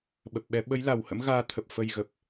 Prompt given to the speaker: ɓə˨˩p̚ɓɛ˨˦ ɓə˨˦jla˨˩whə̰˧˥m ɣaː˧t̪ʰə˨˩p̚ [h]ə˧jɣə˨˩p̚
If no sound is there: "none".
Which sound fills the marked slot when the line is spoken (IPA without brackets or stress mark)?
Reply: f